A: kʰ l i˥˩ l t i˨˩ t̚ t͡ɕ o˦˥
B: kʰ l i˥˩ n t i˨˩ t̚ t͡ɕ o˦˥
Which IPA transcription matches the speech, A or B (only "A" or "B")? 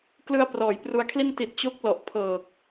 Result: B